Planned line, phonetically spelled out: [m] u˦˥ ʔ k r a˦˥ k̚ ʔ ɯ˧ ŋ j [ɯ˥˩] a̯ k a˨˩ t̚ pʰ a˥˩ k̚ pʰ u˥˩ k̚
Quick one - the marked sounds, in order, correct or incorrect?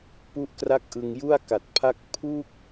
incorrect: p, incorrect: u˥˩

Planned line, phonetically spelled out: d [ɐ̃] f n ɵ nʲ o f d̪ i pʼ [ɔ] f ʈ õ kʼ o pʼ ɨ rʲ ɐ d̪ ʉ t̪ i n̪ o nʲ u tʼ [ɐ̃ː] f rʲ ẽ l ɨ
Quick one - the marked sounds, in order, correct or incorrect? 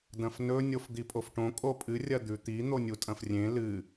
correct, incorrect: o, incorrect: ɐ̃

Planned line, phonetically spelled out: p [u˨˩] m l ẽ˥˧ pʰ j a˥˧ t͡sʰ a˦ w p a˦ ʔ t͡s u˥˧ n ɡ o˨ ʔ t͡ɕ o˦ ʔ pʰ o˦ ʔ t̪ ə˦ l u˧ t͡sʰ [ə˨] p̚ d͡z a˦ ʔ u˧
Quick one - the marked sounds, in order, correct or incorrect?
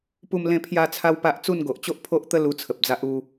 incorrect: u˥˧, correct

